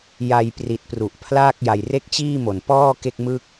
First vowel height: low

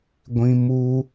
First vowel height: high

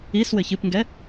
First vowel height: high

